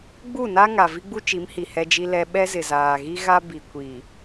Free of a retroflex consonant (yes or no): yes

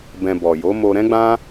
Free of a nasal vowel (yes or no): no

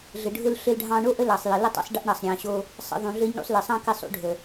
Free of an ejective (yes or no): yes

